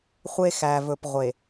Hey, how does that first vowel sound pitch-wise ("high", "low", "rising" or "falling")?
high